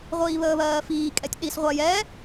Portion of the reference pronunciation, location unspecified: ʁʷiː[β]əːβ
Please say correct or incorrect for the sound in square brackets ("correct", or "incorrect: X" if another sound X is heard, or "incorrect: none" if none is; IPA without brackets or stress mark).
correct